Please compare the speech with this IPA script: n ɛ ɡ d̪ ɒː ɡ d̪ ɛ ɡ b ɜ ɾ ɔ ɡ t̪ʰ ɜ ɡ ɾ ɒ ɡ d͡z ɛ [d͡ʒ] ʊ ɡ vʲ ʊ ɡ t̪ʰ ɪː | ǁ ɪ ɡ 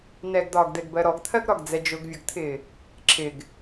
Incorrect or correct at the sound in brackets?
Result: correct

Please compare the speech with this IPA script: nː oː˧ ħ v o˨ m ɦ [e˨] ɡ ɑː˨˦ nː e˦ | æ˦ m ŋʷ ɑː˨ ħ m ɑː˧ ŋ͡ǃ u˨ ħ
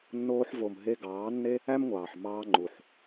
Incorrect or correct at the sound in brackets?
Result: incorrect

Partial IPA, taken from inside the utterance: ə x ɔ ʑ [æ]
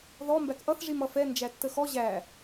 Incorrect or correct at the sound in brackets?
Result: correct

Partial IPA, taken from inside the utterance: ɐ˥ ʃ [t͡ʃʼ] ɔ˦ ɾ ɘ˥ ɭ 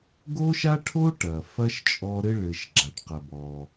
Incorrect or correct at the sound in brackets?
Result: correct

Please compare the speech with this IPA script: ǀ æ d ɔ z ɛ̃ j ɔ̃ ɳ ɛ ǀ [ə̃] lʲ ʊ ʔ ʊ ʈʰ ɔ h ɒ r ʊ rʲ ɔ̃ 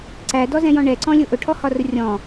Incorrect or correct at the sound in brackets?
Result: incorrect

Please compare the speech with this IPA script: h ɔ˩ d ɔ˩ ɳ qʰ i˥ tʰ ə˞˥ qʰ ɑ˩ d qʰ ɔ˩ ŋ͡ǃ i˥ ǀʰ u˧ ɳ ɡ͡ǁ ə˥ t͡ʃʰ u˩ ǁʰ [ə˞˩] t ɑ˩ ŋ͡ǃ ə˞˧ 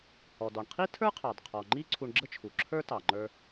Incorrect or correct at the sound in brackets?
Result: incorrect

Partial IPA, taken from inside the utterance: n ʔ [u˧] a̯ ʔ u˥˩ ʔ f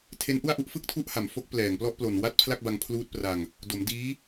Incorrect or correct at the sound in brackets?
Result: incorrect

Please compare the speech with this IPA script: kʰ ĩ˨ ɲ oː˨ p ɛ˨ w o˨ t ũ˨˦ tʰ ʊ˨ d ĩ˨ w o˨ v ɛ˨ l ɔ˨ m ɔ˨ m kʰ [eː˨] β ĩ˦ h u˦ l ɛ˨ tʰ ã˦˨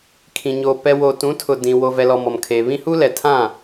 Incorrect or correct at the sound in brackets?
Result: correct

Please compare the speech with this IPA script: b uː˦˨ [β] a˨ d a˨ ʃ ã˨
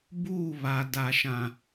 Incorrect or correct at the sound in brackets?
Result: correct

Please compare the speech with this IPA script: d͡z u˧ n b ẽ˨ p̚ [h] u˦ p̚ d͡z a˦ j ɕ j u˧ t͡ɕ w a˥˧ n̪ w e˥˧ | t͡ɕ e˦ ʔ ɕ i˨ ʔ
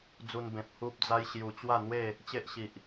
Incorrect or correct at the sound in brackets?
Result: correct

